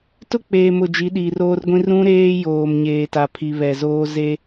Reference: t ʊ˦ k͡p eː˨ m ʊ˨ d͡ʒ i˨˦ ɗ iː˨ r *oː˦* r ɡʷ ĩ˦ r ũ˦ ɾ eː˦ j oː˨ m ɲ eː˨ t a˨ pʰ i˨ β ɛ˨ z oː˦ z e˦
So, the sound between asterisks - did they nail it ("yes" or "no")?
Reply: yes